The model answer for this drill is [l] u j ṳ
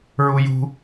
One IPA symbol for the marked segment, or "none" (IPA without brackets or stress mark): ɹ